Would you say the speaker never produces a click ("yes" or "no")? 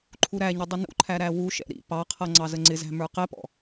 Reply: no